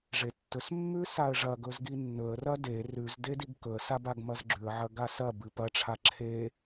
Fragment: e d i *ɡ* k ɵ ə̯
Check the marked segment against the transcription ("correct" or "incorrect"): correct